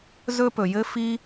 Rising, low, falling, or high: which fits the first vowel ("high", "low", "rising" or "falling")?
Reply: high